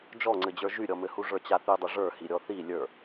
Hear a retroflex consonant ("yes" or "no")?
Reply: yes